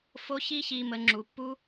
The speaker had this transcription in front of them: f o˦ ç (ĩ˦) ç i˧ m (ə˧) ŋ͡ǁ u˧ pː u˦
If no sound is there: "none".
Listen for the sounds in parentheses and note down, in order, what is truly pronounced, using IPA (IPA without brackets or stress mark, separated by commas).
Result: i˦, ə˧